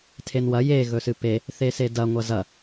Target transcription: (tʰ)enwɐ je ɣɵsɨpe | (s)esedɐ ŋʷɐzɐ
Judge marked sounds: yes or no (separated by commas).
yes, no